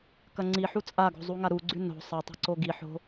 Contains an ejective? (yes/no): yes